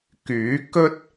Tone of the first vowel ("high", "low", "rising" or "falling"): rising